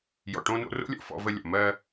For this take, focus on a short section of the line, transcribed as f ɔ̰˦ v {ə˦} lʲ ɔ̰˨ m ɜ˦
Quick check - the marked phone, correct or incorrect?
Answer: correct